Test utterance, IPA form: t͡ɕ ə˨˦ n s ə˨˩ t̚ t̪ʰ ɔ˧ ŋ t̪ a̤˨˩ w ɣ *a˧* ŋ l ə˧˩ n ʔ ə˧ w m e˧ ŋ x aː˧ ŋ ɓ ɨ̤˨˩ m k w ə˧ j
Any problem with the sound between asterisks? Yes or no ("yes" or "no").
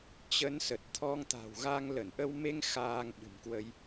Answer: no